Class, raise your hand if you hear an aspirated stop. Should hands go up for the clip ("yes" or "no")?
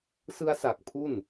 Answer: yes